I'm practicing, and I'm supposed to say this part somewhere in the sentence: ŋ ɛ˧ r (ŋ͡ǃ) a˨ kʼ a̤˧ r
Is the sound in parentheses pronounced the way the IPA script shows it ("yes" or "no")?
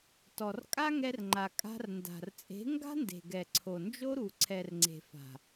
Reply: yes